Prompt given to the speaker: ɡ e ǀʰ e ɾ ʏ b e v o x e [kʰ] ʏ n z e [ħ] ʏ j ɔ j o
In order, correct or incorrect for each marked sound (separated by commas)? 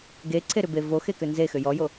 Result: incorrect, incorrect